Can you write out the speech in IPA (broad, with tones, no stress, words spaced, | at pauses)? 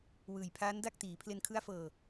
wɯː˨˩jpʰaː˦˥n da˥˩k̚tiː˩˦ pʰle˧nkʰɯ˦˥a̯fɤː˧